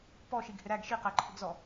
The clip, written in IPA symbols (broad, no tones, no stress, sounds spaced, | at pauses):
p ɔ ʃ i ɡ h ɪ ɾ æ ɡ ʃ i q æ ǃʰ ʊ ɡ z ɔ